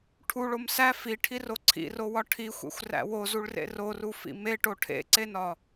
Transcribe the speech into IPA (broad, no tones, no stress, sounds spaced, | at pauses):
ʈʰ u ɭ o m s æ f i ʈʰ i r o ǀʰ ḭ r o w ɒ ʈʰ i xʷ ḛ xʷ r æ̰ w o z u ɭ r ḛ r o r u f ḭ m e ʈ o ʈʰ ḛ ǀ e n ɒ